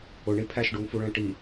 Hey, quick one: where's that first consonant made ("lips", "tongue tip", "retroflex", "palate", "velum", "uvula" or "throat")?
retroflex